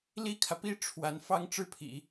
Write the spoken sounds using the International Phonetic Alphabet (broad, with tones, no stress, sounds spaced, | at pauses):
l i˥ kʰ ä˨ p i˥ ʈ͡ʂʰ w a˧˥ n f ɑ˥ ŋ ʈ͡ʂ ɻ̩˥˩ pʰ ḭ˨˩˦